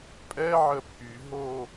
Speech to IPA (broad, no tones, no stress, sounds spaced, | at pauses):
pʼ ɛ ʕ ə pʰ y ɦ o